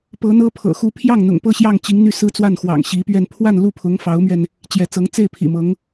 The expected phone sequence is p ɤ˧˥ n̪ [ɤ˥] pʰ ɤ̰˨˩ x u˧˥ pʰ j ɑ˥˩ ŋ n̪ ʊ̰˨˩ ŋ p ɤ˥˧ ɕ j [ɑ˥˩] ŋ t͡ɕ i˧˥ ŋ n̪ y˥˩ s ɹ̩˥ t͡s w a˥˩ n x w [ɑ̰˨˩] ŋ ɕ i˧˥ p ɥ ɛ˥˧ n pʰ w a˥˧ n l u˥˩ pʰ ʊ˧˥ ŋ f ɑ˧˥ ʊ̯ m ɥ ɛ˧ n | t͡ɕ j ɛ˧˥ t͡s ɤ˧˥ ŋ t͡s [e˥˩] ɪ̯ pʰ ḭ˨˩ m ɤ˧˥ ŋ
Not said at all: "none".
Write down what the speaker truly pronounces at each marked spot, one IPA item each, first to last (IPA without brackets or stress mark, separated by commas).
ɤ˥, ɑ˥˩, ɑ̰˨˩, e˥˩